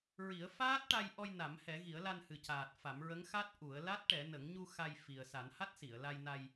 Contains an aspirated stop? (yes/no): no